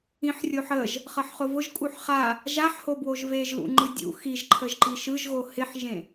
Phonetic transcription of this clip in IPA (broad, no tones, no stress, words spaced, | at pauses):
ĩħrʲoħəʒ | χʌħχʊvʊʒ kʼuħχa | ʒaħhobwoʒ veʒlṵ ŋ͡ǃɯdʲṵ xiʒǃʰəʒǃi ʃɯʒɣo hɪħʒẽ